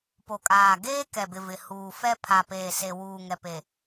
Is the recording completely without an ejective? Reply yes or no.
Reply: no